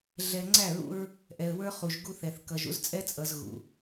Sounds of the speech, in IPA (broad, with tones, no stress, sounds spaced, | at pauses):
ɮ ɛ˨ ŋ͡ǀ æ˦˨ ɹ ṵ˦ ɹ | ʔ ɛ˨ ə̯ w ə˞˦ χ u˨ ʒ ɡ u˦ θ ɛ˨ θ k ʌ˨ ʒ ṵ˦ z t͡sʼ ɛ˦ t͡sʼ ʌ˨ z ɣ ṵ˨